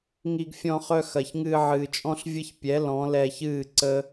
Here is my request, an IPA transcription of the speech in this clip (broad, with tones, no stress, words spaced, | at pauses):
ŋi˧ɡfʲɔ̃˧χœ˧ xɐ˨çŋɨː˧ʕɨː˨t͡ʃʼɔ̃˦ɬ vʲə˦ç pʲɛ˨˦ lɔ̃˨˦lɛ˧çɨː˦˨ ǀə˦